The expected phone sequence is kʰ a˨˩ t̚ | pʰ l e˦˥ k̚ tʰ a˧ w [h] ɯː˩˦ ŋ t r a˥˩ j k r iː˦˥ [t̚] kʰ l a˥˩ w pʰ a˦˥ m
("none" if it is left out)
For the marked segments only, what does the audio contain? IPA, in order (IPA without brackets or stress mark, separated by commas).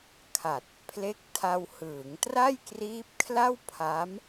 h, p̚